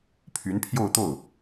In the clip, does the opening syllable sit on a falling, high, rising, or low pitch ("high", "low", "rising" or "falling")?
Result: rising